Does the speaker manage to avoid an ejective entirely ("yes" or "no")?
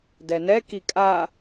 no